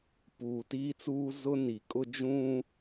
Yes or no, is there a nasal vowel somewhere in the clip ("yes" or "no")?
yes